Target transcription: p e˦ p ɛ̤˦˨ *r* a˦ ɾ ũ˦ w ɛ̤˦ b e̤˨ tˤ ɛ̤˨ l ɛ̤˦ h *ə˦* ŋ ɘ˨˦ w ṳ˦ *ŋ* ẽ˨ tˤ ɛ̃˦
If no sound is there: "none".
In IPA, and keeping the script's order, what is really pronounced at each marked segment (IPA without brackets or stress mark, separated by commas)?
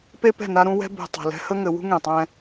n, ə˦, ŋ